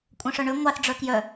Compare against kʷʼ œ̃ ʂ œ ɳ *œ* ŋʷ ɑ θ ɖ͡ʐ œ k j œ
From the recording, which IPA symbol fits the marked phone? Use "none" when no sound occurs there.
ø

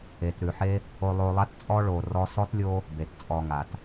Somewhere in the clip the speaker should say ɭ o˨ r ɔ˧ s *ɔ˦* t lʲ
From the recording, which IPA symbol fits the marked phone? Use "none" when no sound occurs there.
ɔ˦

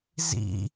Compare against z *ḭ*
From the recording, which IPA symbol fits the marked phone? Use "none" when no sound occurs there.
ḭ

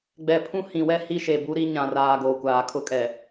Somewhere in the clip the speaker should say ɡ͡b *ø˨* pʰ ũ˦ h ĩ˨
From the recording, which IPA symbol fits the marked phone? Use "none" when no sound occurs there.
ɛ˨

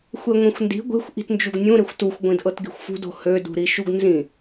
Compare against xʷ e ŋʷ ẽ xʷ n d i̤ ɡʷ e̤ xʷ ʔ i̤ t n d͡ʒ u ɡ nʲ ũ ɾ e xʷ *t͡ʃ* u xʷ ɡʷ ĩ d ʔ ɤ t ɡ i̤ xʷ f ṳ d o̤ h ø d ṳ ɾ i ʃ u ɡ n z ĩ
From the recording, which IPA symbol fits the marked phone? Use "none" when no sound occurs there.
t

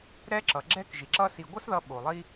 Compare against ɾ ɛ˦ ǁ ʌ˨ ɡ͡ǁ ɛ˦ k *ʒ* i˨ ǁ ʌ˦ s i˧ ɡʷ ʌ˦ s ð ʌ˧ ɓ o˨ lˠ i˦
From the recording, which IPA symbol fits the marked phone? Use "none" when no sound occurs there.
ʒ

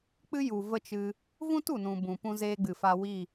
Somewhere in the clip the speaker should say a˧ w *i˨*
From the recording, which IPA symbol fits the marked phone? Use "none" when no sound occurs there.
i˦˨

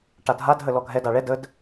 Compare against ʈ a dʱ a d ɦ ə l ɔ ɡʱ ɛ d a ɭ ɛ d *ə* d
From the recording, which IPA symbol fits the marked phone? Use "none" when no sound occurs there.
ə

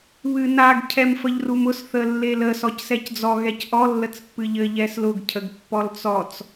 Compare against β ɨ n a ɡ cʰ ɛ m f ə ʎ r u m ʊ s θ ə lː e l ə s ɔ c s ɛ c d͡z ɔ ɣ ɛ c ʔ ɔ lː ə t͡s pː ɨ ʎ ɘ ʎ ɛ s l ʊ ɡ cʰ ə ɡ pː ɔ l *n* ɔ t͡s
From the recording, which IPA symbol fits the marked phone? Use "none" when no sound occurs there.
t͡s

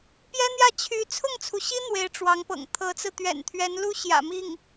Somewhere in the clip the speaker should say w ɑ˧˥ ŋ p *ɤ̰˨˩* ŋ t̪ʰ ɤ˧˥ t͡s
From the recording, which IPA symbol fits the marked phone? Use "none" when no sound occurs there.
ɤ̰˨˩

